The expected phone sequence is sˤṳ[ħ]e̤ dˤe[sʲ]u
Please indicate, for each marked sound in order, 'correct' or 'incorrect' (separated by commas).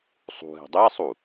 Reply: incorrect, incorrect